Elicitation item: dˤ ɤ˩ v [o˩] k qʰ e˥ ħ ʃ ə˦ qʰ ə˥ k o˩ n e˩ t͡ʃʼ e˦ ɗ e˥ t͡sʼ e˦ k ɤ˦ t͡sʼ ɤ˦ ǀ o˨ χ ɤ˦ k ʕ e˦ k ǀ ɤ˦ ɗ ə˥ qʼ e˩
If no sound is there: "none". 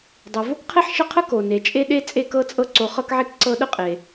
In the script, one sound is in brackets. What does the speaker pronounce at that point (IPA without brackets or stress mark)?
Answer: o˥